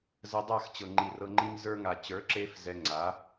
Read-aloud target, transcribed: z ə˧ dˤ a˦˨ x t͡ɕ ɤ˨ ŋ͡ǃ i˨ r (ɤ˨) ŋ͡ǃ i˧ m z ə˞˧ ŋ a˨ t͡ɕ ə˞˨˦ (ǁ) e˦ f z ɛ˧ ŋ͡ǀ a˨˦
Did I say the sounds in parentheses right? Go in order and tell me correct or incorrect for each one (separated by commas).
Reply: incorrect, correct